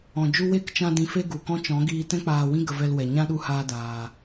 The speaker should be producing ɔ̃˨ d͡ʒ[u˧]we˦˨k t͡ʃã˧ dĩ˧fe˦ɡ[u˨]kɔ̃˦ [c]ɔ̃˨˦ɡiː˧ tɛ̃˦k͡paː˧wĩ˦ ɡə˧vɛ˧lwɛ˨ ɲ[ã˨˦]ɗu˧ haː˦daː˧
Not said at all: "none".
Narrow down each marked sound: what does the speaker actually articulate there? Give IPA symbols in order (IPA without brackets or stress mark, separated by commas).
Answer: u˧, u˨, t͡ʃ, ã˦